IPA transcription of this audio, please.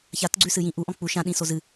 ç a t ɡ͡ǀ ʉ s ɨ j ĩ ʔ u ʔ ɔ̃ k͡p u ʃ ã ɗ ĩ s o z ɨ

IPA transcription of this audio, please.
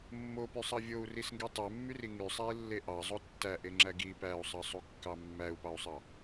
mː o p y sˤ ɑ vʲ o u̯ r i s ŋ ɡ e tˤ e mː y r i ŋ y sˤ æ i̯ lː e ʔ ɑ zˤ o tː æ ʔ e ŋ͡ǁ æ ɡ i p æ u̯ sˤ ɑ sˤ u kː ɑ mː æ u̯ p ɑ u̯ sˤ ɑ

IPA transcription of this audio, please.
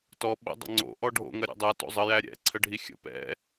t ɔ ɓ ə̰ dˤ ə̰ ŋ͡ǀ o̰ ʔ ɔ ɖʱ o̰ ŋ ɐ ɾʲ ɛ̰ dˤ ɛ t o̰ zˤ ə j æ ɾʲ ɛ̰ ǀʰ ə ɖʱ i xʲ ə̰ p ɛ̰

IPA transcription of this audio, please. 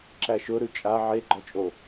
ǁ æ ʃ ʊ ɾ ʉ t͡ʃʼ a ʕ e ɡ͡ǃ ɔ t͡ʃʼ o

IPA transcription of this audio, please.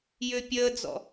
j ʏ pʲ əː d͡z ɔ̰

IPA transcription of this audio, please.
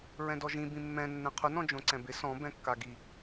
ɹ ɛ̃ d ɔ ʒ ĩ b ĩ mː ɛ̃ nː ɛ̃ qʰ ʊ n ɔ̃ d͡ʒ õ ǀ ɛ̃ b ɪ s ɔ̃ b ɛ̃ kː a ɡ i

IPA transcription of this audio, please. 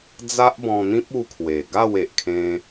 d͡z a˦ ʔ b ɔ̃˧ n̪ ĩ˦ p̚ u˦ kʰ w e˨˩ ɡ a˥˧ w e˨ ʔ kʰ ẽ˧

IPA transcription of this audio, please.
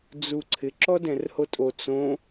d͡z u ǀʰ ɪ ǁ ɔ d ɛ̃ r h o tʼ o t͡s õ

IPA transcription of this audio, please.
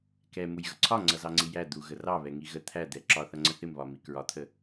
k ɛ m u j ɣ ʌ ǀʰ ɒ ŋ͡ǀ ʌ z ɑ ŋ͡ǀ i j æ d̪ u ɣ ə r ɑ β ɛ ŋ i ɣ ə t̪ʰ æ d̪ ɛ ǁ ɒ θ ʌ ŋ͡ǀ ə θ ɪ m β ɒ m i k ɹ ɒ t̪ʰ ə

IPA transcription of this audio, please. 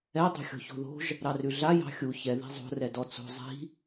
ɛ dˤ o̤ xʲ ɔ̤ ç o̤ ð o̤ ʒ | ɾ ɑ r ʉ ɮ a j ɑ̤ xʲ u ç ɛ ð i̤ zˤ o̤ r ɛ d ɔ t͡s o̤ zˤ i̤

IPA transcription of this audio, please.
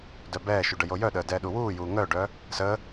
d œ b ɛː ʃ u ɖ ə j o j œ ɗ əː d ɛː ɗ u w uː j uː ŋ œː ɖ œː | s əː

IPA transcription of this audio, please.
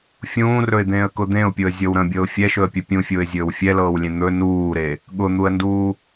fʲ ũː r ɵ ɪ̯ d̪ ẽː ə̯ k ʊ d̪ ẽ ʊ̯ pʲ ʊ ə̯ zʲ ɤ w ɾ ə̃ bʲ ɤ ʊ̯ fʲ ɛ ʃ ɵ ə̯ pʲ ɵ pʲ ũ fʲ ʊː ɪ̯ zʲ ɵː w fʲ ɛ l ɤː w lʲ ẽ n̪ ɵ n uː ɾ e | ɠ ʊ n̪ u ə̯ n d uː

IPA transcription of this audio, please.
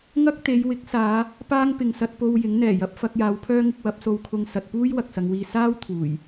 ŋ ɐ˥ k̚ t̪ e˨˧ j w ɪ˨˥ k̚ s aː˨˧ | p aː˥ ŋ p ɪ˨ ŋ s ɐ˧ t̚ p o˧ w j ɪ˨˥ ŋ n̪ ɛː˨˩ j ɐ˨ p̚ f ɐ˧ k̚ j aː˨˧ w pʰ œː˥ ŋ ɪ˧ k̚ w ɐ˨˥ p̚ s o˧ w kʰ ʊ˧ ŋ s ɐ˨ t̚ p uː˥ j w ɐ˨ k̚ s ɐ˨˧ ŋ w iː˧ s aː˥ w t̪ʰ uː˨˩ j

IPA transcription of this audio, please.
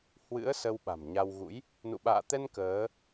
h w ɨ̰˧˥ ə̯ s ə˧ w ɓ a̤˨˩ m ɲ a˧ w ɣ ṵ˧˥ j | n ṵ˧˨ ɓ a̰ː˧˨ t̪ ɛ˧ n k əː˨˦

